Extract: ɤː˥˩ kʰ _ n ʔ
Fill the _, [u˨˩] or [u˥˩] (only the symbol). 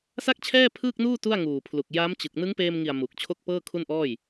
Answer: u˥˩